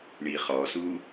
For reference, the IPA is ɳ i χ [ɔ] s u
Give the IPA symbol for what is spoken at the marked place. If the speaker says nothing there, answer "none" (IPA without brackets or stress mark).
ɔ